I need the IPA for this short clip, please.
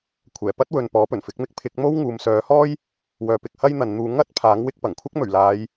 kʷʰɛː˨˩pɐ˥t̚wɵ˨n pɔː˨˥pɵ˨˩nfɪ˨˥k̚mɪ˥k̚ pʰɪ˨˥k̚mo˥w ŋuː˨˧msœː˨˥ hɔː˥j | wœː˨pɪ˨k̚hɐ˥j n̪ɐ˨˧nn̪uː˧ ŋɐ˥t̚ pʰaː˨˥ŋwɪ˧k̚pɐ˨˩ŋkʷʰɐ˥k̚ mɵ˨˩ɥlaː˨˧j

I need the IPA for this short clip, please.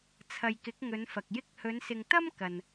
t͡sʰɐ˨jkɪ˨˥k̚ŋɵ˨˧nfɐ˨k̚ jɪ˧k̚hɵ˨˧nsɪ˨ŋ t̪ɐ˥m kɐ˨n

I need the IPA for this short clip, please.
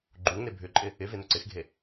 ɡ͡ǃuŋne bʱʏǃʼɪ | ɪve nøǀɪxɡʱe

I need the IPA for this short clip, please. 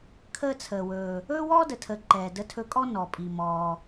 kʰəː˧t͡sʰəː˩wɵː˩ | ɵː˥wɔː˥də˩tʰəː˩ ǃɛː˩ də˧tʰɵ˧kʼɔ˥ nɔ˩pʼi˩ mɔː˩

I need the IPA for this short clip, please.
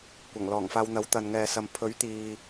kʷɐ˨˩ŋlɔː˨˩ŋfaː˧wn̪ɐ˨˥w t̪ɐ˨nŋɛː˨sɐ˨m pʰɵ˨˥ɥt̪iː˨

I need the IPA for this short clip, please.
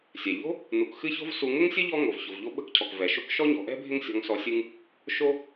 sʲɛ˩ʎo̤˥ | nu˨kxɨ˥ço̤˥v su˨ŋʊ˥ŋsʲə˥ ʎɔ˥ŋo˩v ço˩vʎo˦ɓə̤˦kcʰɔ˩k vɛ˩ʃo˦k ʃɔ˥ɲɔ̤˨ʔɛ̤˥bʱɪ˦ŋ sʲɔ̤˨ŋsɔ˨ sʲɨ˦ŋ | ʃo˦

